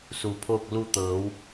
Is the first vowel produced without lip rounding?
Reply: no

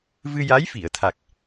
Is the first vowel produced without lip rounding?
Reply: yes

